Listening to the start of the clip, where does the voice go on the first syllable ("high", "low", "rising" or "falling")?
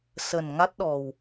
low